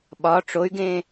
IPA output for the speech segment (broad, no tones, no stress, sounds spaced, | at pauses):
ɓ ɒ ʈ͡ʂ o y̯ ɡ ẽ